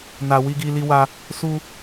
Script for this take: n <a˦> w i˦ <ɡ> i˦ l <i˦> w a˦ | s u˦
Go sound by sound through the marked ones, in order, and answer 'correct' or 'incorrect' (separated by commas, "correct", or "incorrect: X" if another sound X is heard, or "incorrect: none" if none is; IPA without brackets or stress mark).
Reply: incorrect: a˧, correct, correct